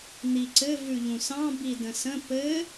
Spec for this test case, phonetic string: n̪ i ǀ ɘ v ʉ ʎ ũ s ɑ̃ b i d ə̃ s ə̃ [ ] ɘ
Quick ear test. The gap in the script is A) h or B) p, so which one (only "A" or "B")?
B